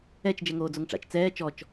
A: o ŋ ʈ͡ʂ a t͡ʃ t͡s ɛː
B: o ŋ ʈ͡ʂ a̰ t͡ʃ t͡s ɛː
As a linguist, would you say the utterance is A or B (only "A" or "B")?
B